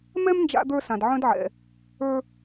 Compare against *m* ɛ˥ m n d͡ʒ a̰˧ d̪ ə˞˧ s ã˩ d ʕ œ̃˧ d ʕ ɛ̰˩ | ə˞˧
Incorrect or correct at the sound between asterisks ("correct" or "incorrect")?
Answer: correct